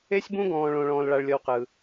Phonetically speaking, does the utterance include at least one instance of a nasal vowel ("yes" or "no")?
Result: yes